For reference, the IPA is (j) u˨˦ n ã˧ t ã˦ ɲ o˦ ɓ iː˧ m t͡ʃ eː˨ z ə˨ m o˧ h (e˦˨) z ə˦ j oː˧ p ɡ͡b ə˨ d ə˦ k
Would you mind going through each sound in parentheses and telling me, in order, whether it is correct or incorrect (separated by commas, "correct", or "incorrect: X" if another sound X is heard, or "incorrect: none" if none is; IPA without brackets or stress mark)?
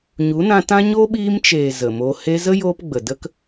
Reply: incorrect: ɲ, incorrect: e˧